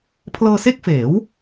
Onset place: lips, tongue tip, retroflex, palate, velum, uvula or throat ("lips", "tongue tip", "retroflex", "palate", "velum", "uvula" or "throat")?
lips